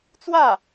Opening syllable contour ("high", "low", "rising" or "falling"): falling